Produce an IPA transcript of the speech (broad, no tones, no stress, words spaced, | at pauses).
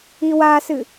iwasɨ